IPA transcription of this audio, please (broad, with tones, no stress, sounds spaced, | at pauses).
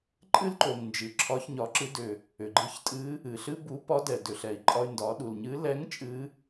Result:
ǃʼ ɨ˥ l ǃ o˩ ŋ n d͡ʒ ɨ˩ ǁʰ ɒ˧˥ ç ɲ ɒ˩˧ ǁ ɨ˧˥ d ʏ˩ | ʏ˩ ɡ͡ǃ ɨ˧˥ ç tʼ ɨ˧˥ | ɨ˩ ɬ ɨ˥ b u˧˥ p ɒ˧˥ d ɛ˩ d ʏ˩ ɬ ɛ˩ i̯ ǃʼ ɒ˧ y̯ n d ɒ˩˧ ɗ u˩ l ɲ ɨ˧˥ l ɛ˧˥ ŋ t͡ʃʼ ɨ˧˥